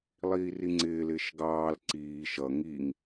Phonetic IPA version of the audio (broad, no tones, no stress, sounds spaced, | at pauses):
lˠ iː r i ŋ͡ǀ ɪː l ɪː ʃ ɡ ɑː l ǀ iː ʃ ʌ ŋ i ŋ